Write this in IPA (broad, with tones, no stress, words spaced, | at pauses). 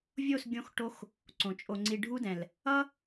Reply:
vʲo˦˨sɡʲõ˧xʈo˧x | ǀõ˨t͡ʃʼo˧ŋ͡ǀi˧ ɖʱu˦dɛ̃˨l | ʌ˦